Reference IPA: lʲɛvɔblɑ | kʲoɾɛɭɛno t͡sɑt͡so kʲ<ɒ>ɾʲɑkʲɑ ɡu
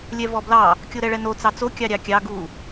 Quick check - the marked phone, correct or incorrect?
incorrect